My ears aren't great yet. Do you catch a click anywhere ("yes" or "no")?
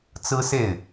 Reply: no